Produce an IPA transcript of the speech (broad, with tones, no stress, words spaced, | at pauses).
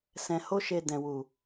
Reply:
sɛ̃˧ho˦ʃe˧ dɛ̃˨wu˨